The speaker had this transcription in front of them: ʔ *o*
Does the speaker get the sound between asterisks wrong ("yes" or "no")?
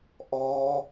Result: yes